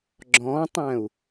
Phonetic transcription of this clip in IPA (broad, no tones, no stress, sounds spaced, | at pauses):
ɡ͡ǁ ɔ̃ tˤ æ̃ u̯